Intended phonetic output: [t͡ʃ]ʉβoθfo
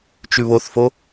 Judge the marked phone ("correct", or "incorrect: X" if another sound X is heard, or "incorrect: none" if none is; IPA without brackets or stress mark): correct